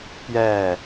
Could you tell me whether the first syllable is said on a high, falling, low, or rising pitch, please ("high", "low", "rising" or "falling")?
falling